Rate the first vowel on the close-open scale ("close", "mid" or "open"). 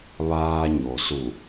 open